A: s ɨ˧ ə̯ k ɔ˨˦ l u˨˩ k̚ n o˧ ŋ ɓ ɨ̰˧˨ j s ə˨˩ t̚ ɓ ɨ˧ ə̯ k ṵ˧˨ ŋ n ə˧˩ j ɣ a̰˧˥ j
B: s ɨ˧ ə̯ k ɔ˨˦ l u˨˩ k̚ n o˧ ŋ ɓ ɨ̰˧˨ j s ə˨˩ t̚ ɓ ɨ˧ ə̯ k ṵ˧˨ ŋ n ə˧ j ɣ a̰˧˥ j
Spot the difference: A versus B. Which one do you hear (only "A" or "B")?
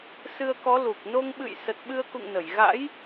A